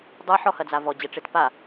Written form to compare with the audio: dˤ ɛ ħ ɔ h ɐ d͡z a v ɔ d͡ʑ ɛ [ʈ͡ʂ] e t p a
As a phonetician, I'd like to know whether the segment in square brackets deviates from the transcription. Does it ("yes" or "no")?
no